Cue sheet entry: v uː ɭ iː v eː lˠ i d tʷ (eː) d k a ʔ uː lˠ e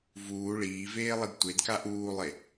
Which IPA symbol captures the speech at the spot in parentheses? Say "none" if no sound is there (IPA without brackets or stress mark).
e